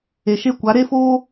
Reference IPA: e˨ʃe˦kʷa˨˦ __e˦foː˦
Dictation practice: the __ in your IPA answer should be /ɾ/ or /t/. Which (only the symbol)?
ɾ